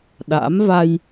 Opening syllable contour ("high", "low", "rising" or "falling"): rising